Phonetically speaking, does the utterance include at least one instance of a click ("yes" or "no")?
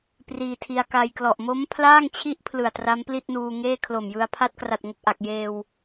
no